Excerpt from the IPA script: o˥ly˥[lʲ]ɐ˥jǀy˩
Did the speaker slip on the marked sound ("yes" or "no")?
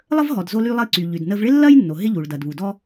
yes